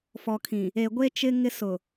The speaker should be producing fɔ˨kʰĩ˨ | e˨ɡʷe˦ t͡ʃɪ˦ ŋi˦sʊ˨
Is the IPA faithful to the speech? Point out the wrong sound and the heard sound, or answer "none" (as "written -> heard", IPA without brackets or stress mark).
i˦ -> ɪ˦